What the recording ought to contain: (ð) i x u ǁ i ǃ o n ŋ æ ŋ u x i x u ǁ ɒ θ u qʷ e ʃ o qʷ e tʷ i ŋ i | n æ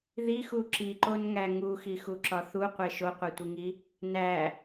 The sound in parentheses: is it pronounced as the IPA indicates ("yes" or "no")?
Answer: yes